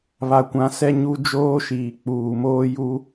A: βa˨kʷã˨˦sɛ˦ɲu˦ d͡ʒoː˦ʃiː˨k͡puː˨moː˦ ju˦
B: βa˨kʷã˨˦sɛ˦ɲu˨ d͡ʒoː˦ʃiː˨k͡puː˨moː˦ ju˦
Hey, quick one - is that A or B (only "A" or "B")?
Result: A